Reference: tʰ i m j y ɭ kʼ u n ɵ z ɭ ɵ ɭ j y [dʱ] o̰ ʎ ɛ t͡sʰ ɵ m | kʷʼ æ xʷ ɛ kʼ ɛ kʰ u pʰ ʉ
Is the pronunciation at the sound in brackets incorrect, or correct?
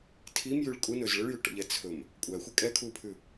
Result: incorrect